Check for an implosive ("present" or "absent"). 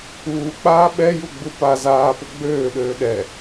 present